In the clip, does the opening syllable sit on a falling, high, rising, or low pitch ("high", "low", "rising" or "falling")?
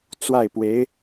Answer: falling